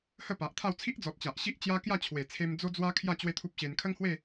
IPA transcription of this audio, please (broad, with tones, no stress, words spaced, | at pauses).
hə˥˧pa˨ʔt̪ʰa˥˧w t͡sʰi˦ʔd͡zɔ˨t̚ t͡ɕa˨ʔɕi˦ʔ t͡ɕja˦kja˥˧ t͡ɕʰwe˨˩t͡sʰe˧m d͡zo˦d͡zwa˦kʰja˥˧ t͡ɕwe˦t̪ʰu˦p̚ɕe˧n kʰə˦ŋhwe˥˧